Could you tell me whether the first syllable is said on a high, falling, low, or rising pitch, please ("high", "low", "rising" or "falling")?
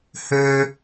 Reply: high